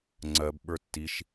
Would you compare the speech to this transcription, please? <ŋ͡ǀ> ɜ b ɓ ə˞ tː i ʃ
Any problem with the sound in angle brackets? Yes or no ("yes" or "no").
no